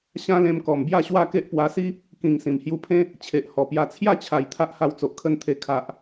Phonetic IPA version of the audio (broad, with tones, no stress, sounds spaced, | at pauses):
ɕ ã˦ l ẽ˧ m k ɔ˨˩ m b j a˥˧ ɕ w a˥˧ k e˦ ʔ p w a˧ s i˦ | k ĩ˨˩ ŋ s ĩ˨˩ m h j u˧ pʰ ẽ˦ | t͡ɕʰ e˨ ʔ h ɔ˨˩ p j a˧ t͡sʰ j a˥˧ t͡ɕʰ a˨˩ j t̪ʰ a˦ ʔ h a˧ w t͡s o˨ ʔ kʰ ə˧ n t̪ʰ e˨˩ kʰ a˨ ʔ